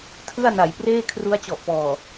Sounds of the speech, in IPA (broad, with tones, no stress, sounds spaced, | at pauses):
tʰ ɯ˥˩ a̯ n a˩˦ j p r eː˥˩ kʰ r u˦˥ a̯ t͡ɕ ɔ˨˩ ʔ p ɔː˨˩